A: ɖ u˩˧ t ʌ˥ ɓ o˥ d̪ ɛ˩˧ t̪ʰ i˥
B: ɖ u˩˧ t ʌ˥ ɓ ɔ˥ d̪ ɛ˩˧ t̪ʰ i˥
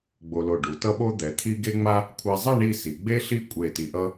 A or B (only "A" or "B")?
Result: A